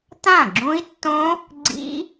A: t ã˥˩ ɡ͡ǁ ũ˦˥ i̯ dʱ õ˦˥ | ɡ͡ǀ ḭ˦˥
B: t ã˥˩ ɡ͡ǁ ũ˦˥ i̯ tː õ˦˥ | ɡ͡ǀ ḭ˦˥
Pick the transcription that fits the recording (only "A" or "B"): B